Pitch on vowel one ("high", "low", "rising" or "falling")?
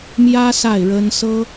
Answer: high